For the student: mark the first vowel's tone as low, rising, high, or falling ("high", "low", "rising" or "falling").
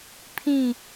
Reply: falling